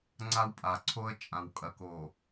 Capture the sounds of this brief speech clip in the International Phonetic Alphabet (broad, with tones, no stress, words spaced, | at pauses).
ŋ͡ǀa˦wpʼa˨ǀʰo˦ə̯ t͡ʃʼã˨wkʼɐ˨ ko˨